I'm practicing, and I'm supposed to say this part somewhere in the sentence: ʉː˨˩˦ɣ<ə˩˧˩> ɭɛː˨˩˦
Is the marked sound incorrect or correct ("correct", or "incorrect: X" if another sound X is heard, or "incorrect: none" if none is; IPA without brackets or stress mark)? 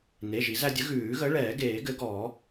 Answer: incorrect: ə˨˥